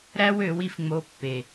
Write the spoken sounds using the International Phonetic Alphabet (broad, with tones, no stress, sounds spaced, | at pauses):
ɾ æ˦ w ø˨˦ w i˧ f ŋ͡m o˧ pː e˨